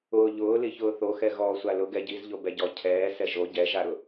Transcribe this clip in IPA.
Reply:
ʊː ʎ ʊː l i ç ʊː θ o x ɛ ɣ ɔː sʷ a l ʊ ɡ ɛ ɟ i z ʎ o b ɛ ɟ ɔ cʰ ɛː s ɛ ʒ o ɟ ɛ ʒ a ɾ ʊ

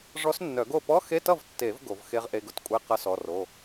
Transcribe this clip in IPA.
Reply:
ʐ ɔ˧˥ s nː œ˨˩˦ ɡ o˥˩ p ɔ˧˥˧ x e˧˥˧ t ʌ˥˩ v tː e˨˩˦ v ɡ o˨˩˦ v x e˧˥ ʁ ʔ e˧˥˧ ɡ ʊ˧˥ t kʷʼ e˧˥˧ q ʌ˧˥ s ɔ˩˧˩ r o˩˧˩

